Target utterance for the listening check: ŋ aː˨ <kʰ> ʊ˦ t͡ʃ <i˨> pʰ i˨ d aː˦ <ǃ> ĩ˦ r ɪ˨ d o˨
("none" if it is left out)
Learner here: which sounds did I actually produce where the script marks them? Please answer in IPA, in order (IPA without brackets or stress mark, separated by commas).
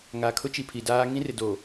kʰ, i˨, ŋ